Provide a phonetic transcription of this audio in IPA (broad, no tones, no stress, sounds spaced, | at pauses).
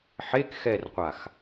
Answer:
ħ e k x ɛ r qʷ a x